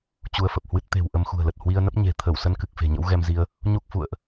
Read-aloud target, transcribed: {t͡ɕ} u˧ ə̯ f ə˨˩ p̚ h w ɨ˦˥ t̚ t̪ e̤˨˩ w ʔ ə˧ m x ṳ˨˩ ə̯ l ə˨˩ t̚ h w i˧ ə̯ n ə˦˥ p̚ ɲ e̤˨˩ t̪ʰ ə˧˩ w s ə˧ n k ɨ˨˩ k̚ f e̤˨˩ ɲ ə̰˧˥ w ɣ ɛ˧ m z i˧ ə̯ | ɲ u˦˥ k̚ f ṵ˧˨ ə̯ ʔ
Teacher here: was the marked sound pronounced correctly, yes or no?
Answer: yes